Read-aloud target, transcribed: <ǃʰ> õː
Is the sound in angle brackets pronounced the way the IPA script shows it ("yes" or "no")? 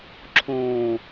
no